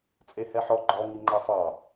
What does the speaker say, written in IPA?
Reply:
t͡sʼehɛħɔ ɡ͡ǃɔ ŋiŋ͡ǃɑfɑ

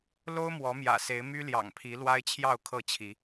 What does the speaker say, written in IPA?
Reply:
lo˦ʊ̯ mwɔ˨˦mjä̰˨˩se˨˦ɪ̯ my˦ljɑ̰˨˩ŋpʰi˨˦ lwa˦ɪ̯t͡ɕʰjɑ˥˨ʊ̯ kʰɤ˥˨t͡ɕʰi˨˦

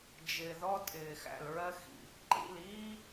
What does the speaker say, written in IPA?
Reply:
d͡ʒɪː˨ ðɔ˦ tʼɪː˨xæ̰˨lɹɜ˦ xḭ˨ | ǃḭ˦˨liː˦

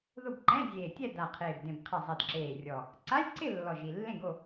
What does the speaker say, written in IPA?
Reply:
ðʊ˥˨b ǃɛ̃˧˥˧zʲeː˨˩ tʲɛ˥˨da˨˩ qʰeː˨˩bdẽ˨˩b qʰɪ˨˩ zˤɛ˨˩dǁeː˨˩rʲɔ˨˩ | ǀa˧˥˧lʲǀɪ˥˨ lːɔ˨˩ʒi˨˩ lːẽ˥˨ɡo˥˨

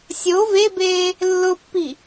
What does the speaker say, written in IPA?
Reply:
sʲo vebeː | lːʊpːi

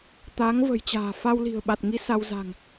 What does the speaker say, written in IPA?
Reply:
t̪a˨˦ŋvə̤˨˩jt͡ɕa̤ː˨˩fa˧w li̤˨˩ə̯ɓa˨˩t̚ŋi˧ sa˧wza̤˨˩ŋ

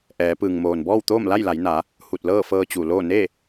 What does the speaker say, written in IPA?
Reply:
ʔɛː˩˧ pɯː˩ŋmoː˩nbɔː˥˨wt̪oː˥˨m la˥˨jla˩˧jna˩˧ | hu˧˩t̚ lɤː˥˨fɤː˧t͡ɕu˩loː˥˨ ne˥˨

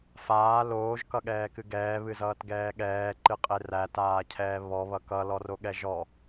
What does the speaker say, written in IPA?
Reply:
faː loːʒkʌɠɛːkɨ ɡɛːβɨzʌːtɡɛː ɠɛːǃɨqʼe rætaːcʰɛː βɔβʌ kʌlɔroɠɛ ʒɔ

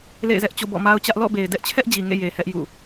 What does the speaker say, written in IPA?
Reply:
lḛ˦˨ɪ̯zɛ˦ʔt͡ɕo̰˦˨ bɔ̰˦˨ma˦ʊ̯t͡ɕä˦ʔ lɔ̰˦˨be˨ɪ̯dɛ˦ʔt͡ɕʰɛ˦ʔ d͡ʑi˨ŋḛ˦˨ je˨hɛ˦ʔ jṵ˦˨

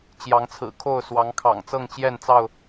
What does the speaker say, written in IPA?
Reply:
t͡ɕjɑ˨˦ŋt͡sʰɹ̩˨˩kʰo˥˨ʊ̯ swɑ˨˦ŋkʰɑ̰˨˩ŋ t͡sɤ˥˨ŋt͡ɕjɛ˥˨nt͡sɑ˥˨ʊ̯

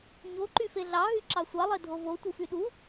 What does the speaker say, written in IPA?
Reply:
ɲoǃy feɮɑɦy ǁɑsʷɑlˠe dʱovo tʷɯfyɗu

